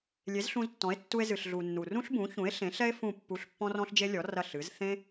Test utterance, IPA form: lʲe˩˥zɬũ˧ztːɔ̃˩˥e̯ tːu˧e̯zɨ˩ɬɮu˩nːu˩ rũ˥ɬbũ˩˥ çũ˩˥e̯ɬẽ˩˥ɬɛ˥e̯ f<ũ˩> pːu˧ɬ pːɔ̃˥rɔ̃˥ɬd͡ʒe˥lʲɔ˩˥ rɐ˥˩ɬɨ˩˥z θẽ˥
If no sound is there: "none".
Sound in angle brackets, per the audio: ũ˥˩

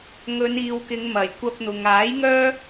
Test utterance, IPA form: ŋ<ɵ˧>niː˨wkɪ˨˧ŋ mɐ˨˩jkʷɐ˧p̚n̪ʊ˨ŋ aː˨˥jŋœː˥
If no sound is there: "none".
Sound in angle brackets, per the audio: ɵ˨˧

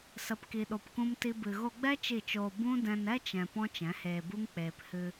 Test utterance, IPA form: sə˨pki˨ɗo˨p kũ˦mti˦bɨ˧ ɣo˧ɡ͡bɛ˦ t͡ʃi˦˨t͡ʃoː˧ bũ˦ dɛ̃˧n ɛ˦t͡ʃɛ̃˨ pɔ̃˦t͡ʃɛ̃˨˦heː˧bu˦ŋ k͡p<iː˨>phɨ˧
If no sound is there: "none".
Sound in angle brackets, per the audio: eː˨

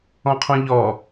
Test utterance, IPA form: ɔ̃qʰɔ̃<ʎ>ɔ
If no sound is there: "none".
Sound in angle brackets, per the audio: ʎ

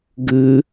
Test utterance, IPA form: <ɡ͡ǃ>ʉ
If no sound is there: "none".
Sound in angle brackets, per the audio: ɡ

